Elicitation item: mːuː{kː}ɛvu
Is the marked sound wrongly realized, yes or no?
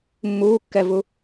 no